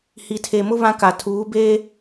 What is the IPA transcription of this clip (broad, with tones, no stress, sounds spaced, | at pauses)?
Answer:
h i˨ tʰ e˨ m ʊ˦ β ã˦ k a˨ tʰ uː˨˦ b eː˦